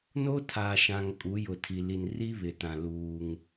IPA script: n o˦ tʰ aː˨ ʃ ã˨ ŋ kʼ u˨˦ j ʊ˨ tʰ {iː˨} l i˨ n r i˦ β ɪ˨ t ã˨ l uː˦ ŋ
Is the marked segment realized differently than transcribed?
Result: yes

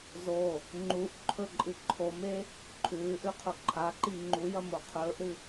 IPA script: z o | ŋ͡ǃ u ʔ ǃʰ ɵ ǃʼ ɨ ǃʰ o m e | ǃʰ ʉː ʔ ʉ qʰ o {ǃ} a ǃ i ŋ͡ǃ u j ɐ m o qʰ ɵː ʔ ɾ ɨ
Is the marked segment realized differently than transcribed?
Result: yes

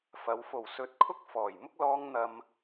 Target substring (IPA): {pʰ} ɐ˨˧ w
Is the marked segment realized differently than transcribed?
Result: yes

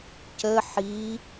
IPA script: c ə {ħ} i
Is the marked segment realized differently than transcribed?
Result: no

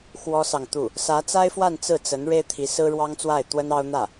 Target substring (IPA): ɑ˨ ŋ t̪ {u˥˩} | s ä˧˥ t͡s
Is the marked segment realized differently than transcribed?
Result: no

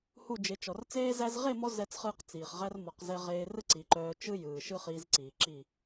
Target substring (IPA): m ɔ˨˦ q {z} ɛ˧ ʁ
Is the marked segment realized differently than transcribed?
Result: no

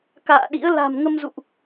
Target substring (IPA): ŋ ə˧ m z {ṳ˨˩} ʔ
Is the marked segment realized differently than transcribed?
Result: yes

